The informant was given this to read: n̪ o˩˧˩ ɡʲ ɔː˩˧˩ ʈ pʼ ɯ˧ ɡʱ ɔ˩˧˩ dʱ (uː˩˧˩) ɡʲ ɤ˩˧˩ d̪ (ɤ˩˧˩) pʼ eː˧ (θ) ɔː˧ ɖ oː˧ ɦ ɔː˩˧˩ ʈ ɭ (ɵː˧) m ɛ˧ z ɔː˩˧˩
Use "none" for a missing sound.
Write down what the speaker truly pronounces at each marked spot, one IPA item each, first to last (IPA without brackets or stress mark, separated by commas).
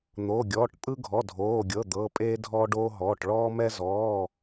oː˩˧˩, ɤ˩˧˩, dʱ, ɔː˧